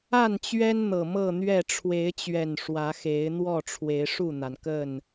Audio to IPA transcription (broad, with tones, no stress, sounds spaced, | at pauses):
a˥˨ n t͡ɕ ɥ ɛ˦ n n̪ ɤ˨˩ m ɤ˥˨ n̪ ɥ ɛ˥˨ ʈ͡ʂʰ w e˨˦ ɪ̯ t͡ɕ ɥ ɛ˨˩ n ʂ w ä˨˦ x e˨˦ ɪ̯ n̪ w ɔ˥˨ ʈ͡ʂʰ w e˨˦ ɪ̯ ʂ u˥˨ n̪ a˩ n k ə˥˨ n